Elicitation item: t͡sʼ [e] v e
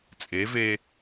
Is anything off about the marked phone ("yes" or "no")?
no